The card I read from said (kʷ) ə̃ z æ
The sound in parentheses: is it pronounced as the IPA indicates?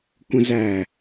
yes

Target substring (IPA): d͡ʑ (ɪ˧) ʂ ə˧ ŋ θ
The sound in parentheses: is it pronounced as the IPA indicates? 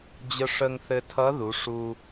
no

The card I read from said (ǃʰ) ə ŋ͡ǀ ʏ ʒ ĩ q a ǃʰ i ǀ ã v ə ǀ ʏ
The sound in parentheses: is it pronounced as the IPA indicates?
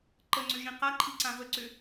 no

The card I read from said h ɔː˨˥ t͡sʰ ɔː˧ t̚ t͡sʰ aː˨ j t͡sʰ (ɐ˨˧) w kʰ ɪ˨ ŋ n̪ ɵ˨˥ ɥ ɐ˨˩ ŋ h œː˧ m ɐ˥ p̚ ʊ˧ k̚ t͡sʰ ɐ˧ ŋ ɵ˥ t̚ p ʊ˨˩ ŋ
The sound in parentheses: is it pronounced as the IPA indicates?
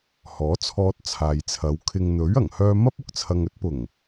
yes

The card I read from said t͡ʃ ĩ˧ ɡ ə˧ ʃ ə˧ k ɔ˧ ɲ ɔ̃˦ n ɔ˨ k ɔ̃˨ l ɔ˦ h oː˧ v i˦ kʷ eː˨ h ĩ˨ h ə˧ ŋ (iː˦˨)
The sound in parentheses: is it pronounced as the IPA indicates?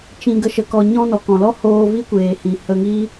no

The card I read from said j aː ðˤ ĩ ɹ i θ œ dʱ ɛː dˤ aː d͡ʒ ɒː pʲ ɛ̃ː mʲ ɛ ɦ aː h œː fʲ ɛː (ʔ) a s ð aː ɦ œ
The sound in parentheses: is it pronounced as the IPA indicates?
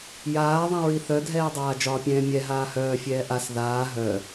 yes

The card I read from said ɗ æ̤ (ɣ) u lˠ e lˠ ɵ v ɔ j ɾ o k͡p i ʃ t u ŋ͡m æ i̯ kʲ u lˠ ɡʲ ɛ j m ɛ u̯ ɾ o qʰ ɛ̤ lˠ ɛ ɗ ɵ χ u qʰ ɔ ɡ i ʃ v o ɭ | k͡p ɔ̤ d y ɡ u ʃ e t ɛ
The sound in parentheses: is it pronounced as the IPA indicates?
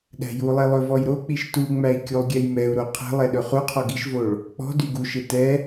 no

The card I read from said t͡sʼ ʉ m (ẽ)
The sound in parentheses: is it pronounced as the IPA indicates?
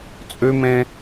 yes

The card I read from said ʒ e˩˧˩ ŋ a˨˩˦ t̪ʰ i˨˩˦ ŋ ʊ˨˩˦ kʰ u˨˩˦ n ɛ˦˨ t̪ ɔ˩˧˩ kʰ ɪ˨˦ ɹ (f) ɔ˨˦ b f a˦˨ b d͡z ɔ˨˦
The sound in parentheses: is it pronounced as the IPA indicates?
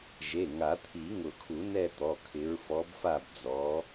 yes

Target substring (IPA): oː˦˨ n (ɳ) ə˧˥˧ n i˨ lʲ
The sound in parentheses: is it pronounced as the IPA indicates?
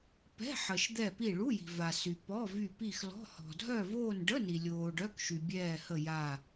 no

